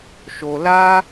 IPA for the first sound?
ʃ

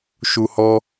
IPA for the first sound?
ʃ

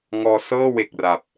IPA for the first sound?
ŋ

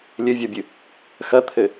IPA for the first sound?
lʲ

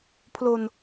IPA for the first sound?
pʰ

